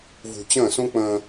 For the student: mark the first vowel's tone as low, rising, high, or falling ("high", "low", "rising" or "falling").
low